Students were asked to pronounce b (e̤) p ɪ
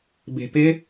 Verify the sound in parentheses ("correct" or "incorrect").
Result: correct